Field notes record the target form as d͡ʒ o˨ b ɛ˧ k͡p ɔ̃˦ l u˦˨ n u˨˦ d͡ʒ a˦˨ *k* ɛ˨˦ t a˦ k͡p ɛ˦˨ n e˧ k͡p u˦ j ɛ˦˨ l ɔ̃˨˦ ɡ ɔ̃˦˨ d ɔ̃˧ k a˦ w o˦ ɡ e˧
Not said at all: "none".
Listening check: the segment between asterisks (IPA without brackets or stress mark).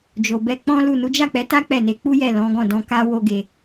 k͡p